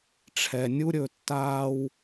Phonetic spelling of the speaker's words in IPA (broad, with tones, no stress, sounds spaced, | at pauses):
ʈ͡ʂʰ ɛ˧ nʲ u˦ ɾʲ ɵ˧ tː aː˦ w